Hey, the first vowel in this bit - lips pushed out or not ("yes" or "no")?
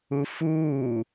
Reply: yes